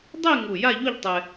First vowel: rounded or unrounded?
unrounded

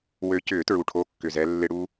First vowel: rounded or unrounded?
rounded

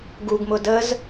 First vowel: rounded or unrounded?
rounded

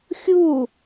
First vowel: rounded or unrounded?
rounded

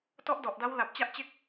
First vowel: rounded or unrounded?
rounded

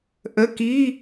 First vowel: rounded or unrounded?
unrounded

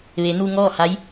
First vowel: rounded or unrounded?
unrounded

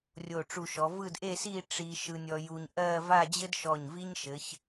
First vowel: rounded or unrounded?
rounded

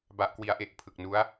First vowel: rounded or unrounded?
unrounded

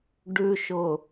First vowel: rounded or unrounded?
rounded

